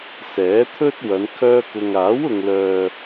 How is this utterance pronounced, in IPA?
sɛː˨˥t̪ʰɵ˥t̚ wɐ˨˧n kʰœː˥kʊ˧ŋ aː˨˥wʊ˨ŋlœː˨

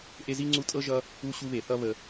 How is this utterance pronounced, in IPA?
ʔe˦zi˥ŋ͡ǀu˦ tʼɤ˥ʒʌ˦ | u˥ɕu˦βe˩ θʌ˦ βə˨

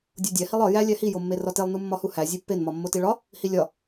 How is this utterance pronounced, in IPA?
dʲodʲæ hilˠɒ jæ lʲæhi jomːerɒtelˠ numːɒhuhæ zʲepːen mɒmːotiɭɒ | hilʲɒ

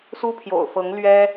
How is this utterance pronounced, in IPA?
su˥pʰjo̰˨˩ʊ̯fɤ˧˥ŋ lɥɛ˥

